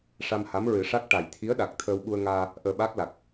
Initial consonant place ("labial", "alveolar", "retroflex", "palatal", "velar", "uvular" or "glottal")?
retroflex